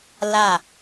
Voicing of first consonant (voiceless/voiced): voiced